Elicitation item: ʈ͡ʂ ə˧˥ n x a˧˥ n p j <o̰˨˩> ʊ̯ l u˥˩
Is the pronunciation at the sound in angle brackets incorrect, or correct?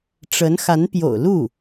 correct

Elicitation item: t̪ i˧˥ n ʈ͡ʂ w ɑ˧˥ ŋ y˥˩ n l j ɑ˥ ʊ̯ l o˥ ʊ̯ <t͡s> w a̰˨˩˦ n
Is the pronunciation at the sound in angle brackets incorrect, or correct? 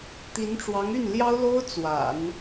correct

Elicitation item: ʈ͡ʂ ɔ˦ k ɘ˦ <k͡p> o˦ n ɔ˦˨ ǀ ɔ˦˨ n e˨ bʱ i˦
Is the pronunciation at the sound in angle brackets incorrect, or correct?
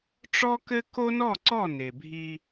incorrect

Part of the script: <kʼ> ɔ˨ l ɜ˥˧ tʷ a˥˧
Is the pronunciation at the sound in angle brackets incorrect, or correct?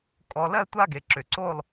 correct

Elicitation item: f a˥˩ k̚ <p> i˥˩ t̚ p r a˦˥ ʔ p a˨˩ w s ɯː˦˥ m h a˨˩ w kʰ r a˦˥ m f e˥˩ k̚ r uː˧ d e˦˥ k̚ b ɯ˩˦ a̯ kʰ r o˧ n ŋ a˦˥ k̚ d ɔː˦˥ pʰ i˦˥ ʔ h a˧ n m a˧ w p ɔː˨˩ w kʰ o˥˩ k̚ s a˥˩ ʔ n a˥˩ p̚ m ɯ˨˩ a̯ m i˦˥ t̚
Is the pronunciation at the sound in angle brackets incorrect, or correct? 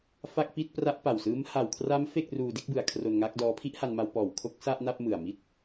correct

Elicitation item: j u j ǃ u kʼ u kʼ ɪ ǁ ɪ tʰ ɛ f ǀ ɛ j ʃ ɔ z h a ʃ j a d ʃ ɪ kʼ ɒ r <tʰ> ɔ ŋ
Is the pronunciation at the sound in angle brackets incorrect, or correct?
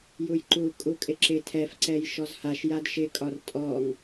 incorrect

